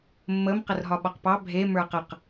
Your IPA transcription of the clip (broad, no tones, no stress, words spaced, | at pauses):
mːəm qərɦɒɓɒqpɑ bʱe mə˞qəq